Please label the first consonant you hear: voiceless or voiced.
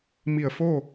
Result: voiced